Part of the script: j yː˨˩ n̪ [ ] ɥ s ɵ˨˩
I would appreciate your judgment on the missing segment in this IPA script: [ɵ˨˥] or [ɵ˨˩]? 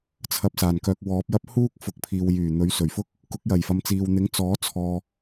ɵ˨˥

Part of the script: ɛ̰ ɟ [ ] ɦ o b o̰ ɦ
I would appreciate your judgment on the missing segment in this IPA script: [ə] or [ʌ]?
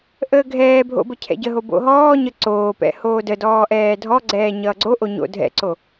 ə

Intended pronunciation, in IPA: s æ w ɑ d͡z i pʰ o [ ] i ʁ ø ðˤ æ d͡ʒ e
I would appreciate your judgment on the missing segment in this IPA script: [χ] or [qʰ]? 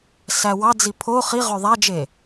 χ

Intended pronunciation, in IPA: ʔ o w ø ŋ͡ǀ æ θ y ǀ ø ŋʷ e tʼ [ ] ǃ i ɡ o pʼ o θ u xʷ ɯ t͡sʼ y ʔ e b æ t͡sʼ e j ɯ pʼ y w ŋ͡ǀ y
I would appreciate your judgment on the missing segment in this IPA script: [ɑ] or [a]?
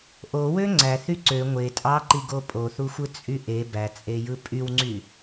ɑ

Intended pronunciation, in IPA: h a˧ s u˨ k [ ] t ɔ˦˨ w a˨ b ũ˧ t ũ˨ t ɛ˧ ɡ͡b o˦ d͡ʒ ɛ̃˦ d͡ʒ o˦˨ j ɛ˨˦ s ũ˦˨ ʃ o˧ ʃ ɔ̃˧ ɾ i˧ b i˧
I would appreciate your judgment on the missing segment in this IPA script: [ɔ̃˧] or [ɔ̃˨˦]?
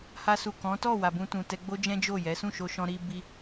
ɔ̃˨˦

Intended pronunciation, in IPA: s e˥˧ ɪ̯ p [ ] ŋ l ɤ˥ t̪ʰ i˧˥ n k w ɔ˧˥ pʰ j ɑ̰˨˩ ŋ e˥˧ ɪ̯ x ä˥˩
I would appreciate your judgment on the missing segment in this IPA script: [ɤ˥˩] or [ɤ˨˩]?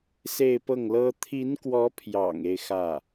ɤ˥˩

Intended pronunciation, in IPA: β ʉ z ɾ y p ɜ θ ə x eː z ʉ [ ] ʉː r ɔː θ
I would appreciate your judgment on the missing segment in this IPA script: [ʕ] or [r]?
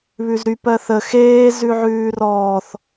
ʕ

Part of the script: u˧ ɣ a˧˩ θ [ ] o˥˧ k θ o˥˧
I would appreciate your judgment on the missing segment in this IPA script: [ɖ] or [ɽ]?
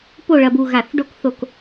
ɖ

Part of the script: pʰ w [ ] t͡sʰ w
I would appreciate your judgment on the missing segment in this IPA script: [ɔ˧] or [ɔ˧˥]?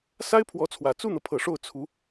ɔ˧˥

